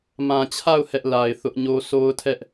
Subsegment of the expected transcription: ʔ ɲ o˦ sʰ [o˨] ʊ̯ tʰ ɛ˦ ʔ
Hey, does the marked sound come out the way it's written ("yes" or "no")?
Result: no